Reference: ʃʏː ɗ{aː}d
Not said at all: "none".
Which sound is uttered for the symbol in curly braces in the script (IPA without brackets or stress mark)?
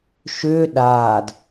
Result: aː